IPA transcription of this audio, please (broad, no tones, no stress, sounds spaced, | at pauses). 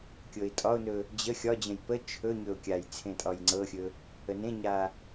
kʲ ɤ ɪ̯ tʼ ɒ ʊ̯ n ɵ | d͡ʑ ə xʲ ɒ d͡ʑ ə̃ j p ə t͡ʃʰ ɵ ɲ ɵ ʊ̯ kʲ a j t͡sʰ ẽ tʼ ɒ j ŋ͡ǀ ɤ xʲ ɵ | ə n ẽ ɲ a